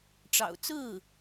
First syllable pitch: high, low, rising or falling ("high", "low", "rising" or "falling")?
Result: low